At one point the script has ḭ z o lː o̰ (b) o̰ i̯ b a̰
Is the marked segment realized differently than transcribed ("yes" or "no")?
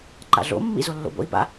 no